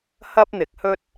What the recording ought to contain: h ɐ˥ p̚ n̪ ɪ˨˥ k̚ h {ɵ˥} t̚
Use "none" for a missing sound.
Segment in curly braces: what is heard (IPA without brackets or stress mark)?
ɵ˥